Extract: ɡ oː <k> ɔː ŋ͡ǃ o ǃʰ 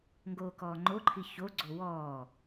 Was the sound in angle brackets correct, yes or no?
yes